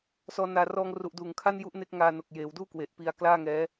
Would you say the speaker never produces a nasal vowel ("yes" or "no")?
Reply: yes